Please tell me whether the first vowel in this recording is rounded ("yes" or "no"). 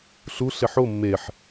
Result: yes